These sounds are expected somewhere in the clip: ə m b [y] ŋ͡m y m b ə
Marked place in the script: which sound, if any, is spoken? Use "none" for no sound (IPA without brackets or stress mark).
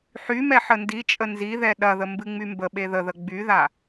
ɨ